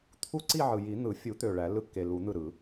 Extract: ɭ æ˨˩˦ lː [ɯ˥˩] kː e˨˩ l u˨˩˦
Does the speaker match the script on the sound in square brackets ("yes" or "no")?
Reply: yes